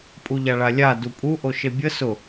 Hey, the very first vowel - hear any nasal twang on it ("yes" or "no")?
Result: no